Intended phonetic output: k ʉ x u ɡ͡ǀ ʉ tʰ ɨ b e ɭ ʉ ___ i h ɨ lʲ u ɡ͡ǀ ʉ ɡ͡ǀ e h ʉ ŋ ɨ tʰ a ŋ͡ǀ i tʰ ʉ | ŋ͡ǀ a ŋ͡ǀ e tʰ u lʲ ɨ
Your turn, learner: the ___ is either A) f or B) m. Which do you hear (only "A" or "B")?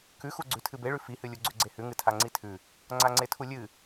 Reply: A